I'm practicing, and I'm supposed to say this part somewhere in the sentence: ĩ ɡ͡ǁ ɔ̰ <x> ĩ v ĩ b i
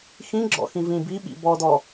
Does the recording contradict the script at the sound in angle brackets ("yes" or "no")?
no